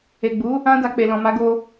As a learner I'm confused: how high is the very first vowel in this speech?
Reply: mid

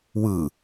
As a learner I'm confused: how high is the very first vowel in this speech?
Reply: high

